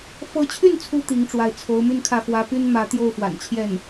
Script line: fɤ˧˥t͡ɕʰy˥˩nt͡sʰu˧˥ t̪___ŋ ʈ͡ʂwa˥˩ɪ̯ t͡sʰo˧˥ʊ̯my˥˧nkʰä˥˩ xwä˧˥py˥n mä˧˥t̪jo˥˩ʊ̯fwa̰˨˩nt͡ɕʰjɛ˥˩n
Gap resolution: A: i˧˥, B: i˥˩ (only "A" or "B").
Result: A